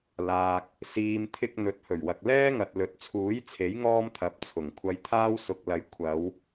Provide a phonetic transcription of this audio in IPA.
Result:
l aː˨ k̚ | s iː˨ m t̪ʰ ɪ˧ k̚ n̪ ɵ˨ t̚ h ɵ˨˩ ɥ w ɐ˨ k̚ l ɛː˥ ŋ ɐ˨ t̚ l ɵ˨˥ t̚ t͡sʰ uː˨˥ j t͡sʰ e˨˥ j ŋ ɔː˥ m t̪ʰ ɐ˨˥ p̚ t͡sʰ ʊ˨˩ ŋ kʷʰ ɐ˧ j t̪ʰ aː˥ w s ʊ˧ k̚ l ɐ˧ j kʷʰ ɐ˨˧ w

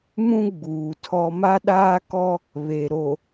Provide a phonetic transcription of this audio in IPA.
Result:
m ũ˦ ɡ͡b uː˨ tʰ ɔ˦ m a˦ ɗ aː˦ k ɔ˦ | β e˨ ɾ o˨

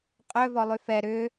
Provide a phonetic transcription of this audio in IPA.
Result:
qʼ œ v ɔ lˠ y f ɛ ɾ ʏ

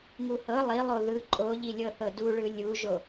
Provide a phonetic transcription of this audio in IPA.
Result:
ŋ u h ɤ lˠ i lˠ o ð ɯ ǃʼ o ʎ i lʲ ɤ θ ɤ d u ɭ ɯ lʲ u ʒ o

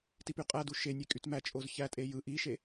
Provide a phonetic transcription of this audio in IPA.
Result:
t i p y qʼ æ d u ʃ e nʲ e kʼ y t m æ t͡ʃʼ o z ç æ tʼ e j ɯ ʔ i ʃ e

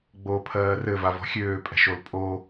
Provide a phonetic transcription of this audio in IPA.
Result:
ɡ͡b o pʰ ɜː r ɘ v a v ɔ̤ xʲ øː pʼ ɛ̤ ʃ o l pʼ o

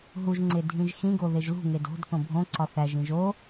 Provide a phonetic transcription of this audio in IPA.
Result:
ɦ u ʒ ŋ͡ǀ e dʱ ĩ ʒ x ĩ ɡ o ð e ʒ l ṳ ŋ e d o̤ d θ õ bʱ õ ǀ ɒ θ æ ʒ ĩ ʒ o

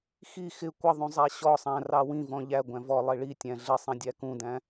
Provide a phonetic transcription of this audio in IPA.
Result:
x i x ɪ kʷ ʌ ðˤ ũ zˤ æ ɕ ɔ sˤ æ̃ r ɑ w ĩ v ɔ̃ ʎ æ ɡʷ æ̃ v ɔ lˠ i ɭ i tʲ æ̃ ɮ ɪ sˤ ĩ dʲ æ k ũ d æ̃

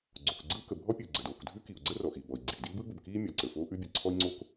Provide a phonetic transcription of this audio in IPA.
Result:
ɡ͡ǀ oː˩ k ɡ͡ǀ ɯː˥ k ə˩ bʱ ɔ˥ pʲ ə˩ u̯ ɡ͡ǀ ə˩ d oː˩ k dʱ ʉ˥ k i˩ u̯ ɡ͡ǀ ə˥ r ɔ˩ ʔ i˩ b ɔ˩ i̯ ɡ͡ǀ iː˩ d iː˥ b ɯː˥ b ə˩ b k iː˥ mʲ ɔ˩ ǀ ə˩ f oː˥ ʔ ʉ˥ bʲ ə˩ ǀʰ ɔ˥ i̯ ŋ͡ǀ o˥ k

